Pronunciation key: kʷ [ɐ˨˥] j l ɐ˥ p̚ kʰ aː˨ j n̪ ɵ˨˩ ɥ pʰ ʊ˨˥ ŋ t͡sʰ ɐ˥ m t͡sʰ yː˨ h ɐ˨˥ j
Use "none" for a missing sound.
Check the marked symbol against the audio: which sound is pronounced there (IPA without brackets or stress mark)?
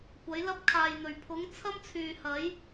ɐ˨˥